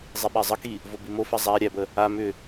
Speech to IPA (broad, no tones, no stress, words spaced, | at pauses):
zˤiɓæzˤəki | vobimofa zˤæ ɾʲæbə | a mʏ